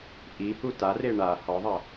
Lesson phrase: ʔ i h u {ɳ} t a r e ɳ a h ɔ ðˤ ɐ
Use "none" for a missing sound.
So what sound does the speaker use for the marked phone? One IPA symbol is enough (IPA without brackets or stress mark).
none